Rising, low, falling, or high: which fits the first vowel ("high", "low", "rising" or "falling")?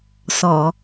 low